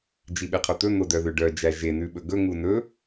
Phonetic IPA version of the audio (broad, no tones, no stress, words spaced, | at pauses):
d͡ʒiɓeqʰɵt̪ɵ n̪odœðøɖœ d͡ʒæʒe nʉɓɵɡɵ ŋunɵ